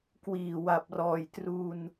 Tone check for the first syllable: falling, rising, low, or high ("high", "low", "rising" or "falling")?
low